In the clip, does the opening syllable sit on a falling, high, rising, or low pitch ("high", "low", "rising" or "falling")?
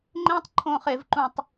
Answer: high